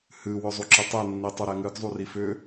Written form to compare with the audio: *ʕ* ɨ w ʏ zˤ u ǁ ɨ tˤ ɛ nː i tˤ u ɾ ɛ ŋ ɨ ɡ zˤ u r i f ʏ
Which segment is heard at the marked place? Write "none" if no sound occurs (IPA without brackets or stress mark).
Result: h